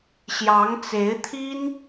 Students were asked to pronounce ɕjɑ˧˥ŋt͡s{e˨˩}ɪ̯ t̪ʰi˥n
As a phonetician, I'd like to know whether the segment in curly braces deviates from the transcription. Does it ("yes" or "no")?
yes